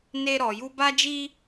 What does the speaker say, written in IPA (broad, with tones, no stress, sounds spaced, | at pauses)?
n e˦ ɾ ɔ˧ j u˦ b a˦ d͡ʒ i˦